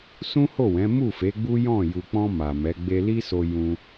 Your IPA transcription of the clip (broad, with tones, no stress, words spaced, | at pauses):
sũ˦ho˦˨wɛ̃˨˦ mu˦˨fe˨˦ɡ͡bu˦ jɔ̃˦˨ ju˨k͡pɔ̃˧ ma˨mɛ˨˦ ɡ͡be˧li˦so˧ jũ˧